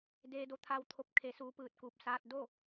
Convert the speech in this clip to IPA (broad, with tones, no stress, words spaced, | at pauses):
deː˧do˧t̪ʰa˧w t̪ʰo˧p̚ kʰe˧˥suː˧˥pɯː˧t̚kuː˧p̚ saː˧t̚ do˥˨